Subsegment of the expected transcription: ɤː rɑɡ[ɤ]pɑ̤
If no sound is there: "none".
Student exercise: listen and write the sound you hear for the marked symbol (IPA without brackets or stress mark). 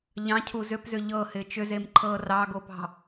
o